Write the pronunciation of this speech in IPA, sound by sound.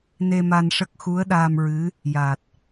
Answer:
ne˧ma˧nʂə˦˥k̚ xu˧˥ə̯ɗaː˧mɹɨ˧˥ | ja˨˩t̚

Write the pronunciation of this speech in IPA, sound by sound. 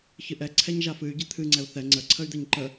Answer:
çɨʔɛ ǀʰɛɲʒafɨy̯ ɟɨt̪ʰɨ ŋ͡ǀɛu̯θɛ ŋ͡ǀə ǀʰəy̯d̪ɛɲǃə

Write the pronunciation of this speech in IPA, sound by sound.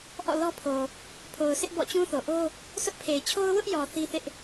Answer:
ʔɔ̰˦˨lɔ˦pʰo˨ | pʰo˨ʊ̯sɪ˦ʔ bɔ̰˦˨t͡ɕũ˦ θo˨ʔo˦ | sʊ˦ʔpʰe˨ɪ̯ t͡ɕʰo˦ʊ̯wʊ˦ʔjɔ˨ θi˦θɪ˦ʔ

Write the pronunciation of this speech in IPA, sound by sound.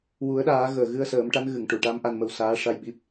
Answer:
wu˨˩˦ə̯ɗaː˨˩˦ ɣəː˨˩ɣɨ˧ə̯ səː˨˩˦mʈa˧˥n ɣɨ˨˩˨ŋʈu˨˩˨ʈa˧˥m ʔa˧nmə˧wsaː˧˥ ʂa˧j ɓi˦˥p̚

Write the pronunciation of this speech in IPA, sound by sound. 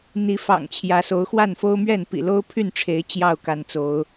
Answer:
n̪i˨˦fɑ̰˨˩ŋ t͡ɕʰjä˨˦so˨˦ʊ̯ xwa˥˨nfo˦ʊ̯mɥɛ˥˨n pḭ˨˩lo˦ʊ̯pʰy˥˨nʈ͡ʂʰe˨˦ɪ̯ t͡ɕjɑ˥˨ʊ̯ka˨˦nt͡so˨˦ʊ̯

